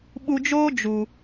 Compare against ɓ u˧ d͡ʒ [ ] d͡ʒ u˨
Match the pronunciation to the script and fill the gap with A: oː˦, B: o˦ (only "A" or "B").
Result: A